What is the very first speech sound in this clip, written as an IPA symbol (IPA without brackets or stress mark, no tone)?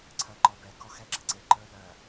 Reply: ǀʰ